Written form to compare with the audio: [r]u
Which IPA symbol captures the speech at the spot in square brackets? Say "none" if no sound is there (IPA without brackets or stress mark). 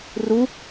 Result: r